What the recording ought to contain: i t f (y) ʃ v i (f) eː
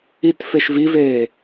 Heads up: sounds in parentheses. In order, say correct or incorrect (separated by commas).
incorrect, incorrect